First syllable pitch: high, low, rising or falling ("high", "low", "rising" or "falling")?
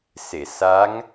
low